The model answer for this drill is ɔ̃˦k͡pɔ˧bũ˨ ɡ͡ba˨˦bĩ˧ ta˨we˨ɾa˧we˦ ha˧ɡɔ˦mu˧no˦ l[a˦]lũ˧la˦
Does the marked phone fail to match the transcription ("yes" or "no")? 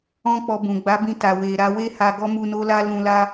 no